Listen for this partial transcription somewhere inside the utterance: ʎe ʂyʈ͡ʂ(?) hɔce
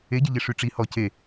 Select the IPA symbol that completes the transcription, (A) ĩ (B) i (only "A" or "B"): B